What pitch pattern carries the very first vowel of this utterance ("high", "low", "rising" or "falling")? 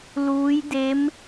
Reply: rising